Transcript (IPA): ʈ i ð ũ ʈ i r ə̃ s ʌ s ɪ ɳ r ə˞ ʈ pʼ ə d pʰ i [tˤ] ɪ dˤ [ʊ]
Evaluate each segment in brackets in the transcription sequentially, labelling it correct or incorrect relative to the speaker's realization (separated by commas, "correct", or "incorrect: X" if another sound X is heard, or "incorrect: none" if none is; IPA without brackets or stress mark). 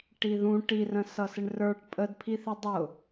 incorrect: θ, correct